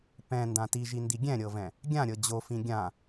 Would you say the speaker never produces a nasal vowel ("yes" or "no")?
no